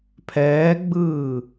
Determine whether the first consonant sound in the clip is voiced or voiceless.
voiceless